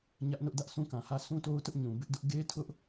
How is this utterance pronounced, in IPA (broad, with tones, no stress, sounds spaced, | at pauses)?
ɲ ä˦ ʔ n ʊ˦ ʔ d ä˦ ʔ s ũ˦ k ã˨ h ä˦ sʰ ũ˦ t o˦ ʊ̯ t ʊ˦ ʔ ɲ ũ˨ b ɪ˦ ʔ d ʊ˦ ʔ ɡ e˦ tʰ ʊ˦ ʔ